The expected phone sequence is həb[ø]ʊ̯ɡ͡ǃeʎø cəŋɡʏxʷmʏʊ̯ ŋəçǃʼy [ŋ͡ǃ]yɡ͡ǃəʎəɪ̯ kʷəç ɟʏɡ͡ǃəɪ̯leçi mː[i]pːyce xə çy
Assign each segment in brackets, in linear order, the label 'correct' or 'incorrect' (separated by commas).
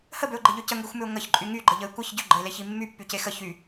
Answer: correct, incorrect, incorrect